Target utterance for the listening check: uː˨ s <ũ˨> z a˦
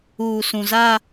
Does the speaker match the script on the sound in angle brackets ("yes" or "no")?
yes